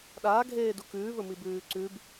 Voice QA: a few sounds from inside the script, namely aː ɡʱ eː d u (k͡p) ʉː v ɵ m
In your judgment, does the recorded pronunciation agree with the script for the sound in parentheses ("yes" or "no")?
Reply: no